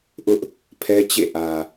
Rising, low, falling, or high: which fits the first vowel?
high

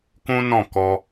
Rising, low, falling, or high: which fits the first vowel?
high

